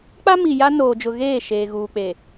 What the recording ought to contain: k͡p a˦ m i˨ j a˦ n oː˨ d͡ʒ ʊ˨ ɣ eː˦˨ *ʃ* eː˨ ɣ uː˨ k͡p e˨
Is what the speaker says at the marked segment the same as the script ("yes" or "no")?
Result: yes